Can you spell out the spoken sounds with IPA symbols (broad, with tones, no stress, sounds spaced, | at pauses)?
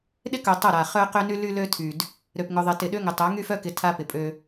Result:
ɗ ɪ˦ k œ˨ tˤ ʊ˦˨ ɾ a˨ χ œ˦ q ø˦ n y˦ l y˦ l ø˦ tʰ y˨ d | ɾ ø˨ p ŋ ʊ˨ ðˤ ɪ˨ t ɪ˨ ɗ ø˦ ŋ ɪ˨ tˤ œ˨˦ ŋ y˦ f œ˦ k ɪ˨ tʰ a˦ p ɪ˨ pʼ ø˦